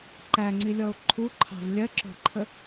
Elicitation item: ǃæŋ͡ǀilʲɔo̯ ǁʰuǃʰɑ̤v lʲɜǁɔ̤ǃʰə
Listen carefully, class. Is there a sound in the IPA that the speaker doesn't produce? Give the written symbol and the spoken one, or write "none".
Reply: ǁʰ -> ǃʰ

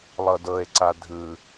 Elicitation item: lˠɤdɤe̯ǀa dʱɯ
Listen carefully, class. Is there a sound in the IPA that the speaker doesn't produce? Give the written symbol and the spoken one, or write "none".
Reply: none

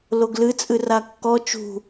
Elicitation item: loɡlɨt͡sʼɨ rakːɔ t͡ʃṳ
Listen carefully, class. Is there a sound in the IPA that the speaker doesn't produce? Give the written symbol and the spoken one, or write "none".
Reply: none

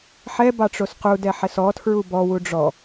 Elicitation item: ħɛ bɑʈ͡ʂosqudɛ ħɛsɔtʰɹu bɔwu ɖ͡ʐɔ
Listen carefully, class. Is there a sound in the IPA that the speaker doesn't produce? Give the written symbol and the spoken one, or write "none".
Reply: none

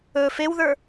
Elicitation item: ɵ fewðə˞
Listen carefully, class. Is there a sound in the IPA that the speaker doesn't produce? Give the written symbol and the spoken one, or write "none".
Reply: none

